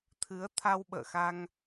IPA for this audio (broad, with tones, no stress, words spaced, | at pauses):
t̪ʰɨ˨˦ə̯t̪ʰa˧wɓə̰ː˧˨xa˧ŋ